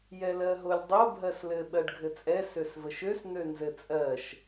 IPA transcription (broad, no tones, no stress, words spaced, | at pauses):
jɛlɜɦolʲdˤo bʱɜslɘ ɓɜɖɡʱɘt͡sʼɛ søsvəʃøs n̪ønzɘt͡sʼɜʃ